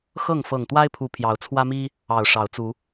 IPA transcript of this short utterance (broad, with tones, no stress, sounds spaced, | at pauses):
x ɤ˥˨ ŋ f ɤ˨˩ ŋ t̪ w a˦ ɪ̯ pʰ u˨˦ pʰ j ɑ˨˦ ʊ̯ t͡sʰ w ä˦ m i˦ | ɑ˨˩ ʊ̯ ʂ ɑ˨˦ ʊ̯ t͡s u˨˦